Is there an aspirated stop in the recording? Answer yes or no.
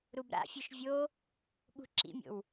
no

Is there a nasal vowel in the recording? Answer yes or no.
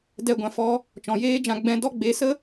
yes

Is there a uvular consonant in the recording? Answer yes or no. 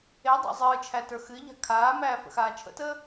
no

